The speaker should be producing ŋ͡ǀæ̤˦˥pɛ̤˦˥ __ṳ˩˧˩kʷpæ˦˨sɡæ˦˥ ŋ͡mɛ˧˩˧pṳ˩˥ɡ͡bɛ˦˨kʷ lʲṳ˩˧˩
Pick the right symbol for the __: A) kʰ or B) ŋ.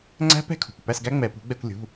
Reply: A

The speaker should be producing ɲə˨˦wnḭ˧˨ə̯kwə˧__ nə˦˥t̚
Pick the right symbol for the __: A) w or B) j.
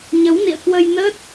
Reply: B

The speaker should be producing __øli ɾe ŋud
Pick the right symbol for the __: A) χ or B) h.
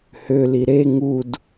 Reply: B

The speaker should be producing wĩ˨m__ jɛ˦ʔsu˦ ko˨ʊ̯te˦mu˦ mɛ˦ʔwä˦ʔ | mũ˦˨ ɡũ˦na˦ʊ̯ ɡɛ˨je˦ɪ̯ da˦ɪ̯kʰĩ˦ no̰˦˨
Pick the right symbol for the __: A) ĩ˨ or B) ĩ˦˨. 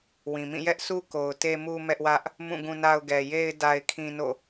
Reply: B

